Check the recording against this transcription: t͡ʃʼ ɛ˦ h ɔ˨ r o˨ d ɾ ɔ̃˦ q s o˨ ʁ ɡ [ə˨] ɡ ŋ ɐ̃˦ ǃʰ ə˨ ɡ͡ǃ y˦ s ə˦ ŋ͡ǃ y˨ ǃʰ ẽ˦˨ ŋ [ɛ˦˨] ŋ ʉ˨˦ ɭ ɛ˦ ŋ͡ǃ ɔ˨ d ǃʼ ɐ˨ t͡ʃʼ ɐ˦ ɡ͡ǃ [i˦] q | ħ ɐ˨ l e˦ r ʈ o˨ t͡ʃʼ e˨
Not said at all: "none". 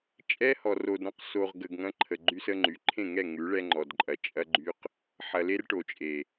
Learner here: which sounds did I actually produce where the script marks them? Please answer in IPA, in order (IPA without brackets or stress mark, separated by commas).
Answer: ə˨, ɛ˦˨, y˦